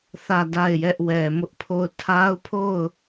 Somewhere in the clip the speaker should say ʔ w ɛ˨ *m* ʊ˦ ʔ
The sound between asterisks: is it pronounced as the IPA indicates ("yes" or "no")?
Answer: yes